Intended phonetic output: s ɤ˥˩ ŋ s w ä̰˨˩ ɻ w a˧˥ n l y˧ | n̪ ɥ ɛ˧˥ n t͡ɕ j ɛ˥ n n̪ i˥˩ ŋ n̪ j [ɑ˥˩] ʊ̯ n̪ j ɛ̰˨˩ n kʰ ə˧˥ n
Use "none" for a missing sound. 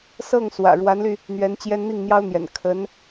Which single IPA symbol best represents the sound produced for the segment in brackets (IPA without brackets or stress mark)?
ɑ˥